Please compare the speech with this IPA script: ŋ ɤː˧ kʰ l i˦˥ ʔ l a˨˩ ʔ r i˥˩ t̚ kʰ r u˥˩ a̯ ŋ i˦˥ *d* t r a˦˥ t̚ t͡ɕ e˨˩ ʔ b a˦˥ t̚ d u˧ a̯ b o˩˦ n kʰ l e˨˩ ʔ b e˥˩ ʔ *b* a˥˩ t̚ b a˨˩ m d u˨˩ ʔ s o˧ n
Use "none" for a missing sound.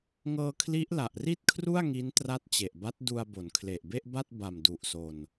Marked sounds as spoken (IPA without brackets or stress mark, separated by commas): n, b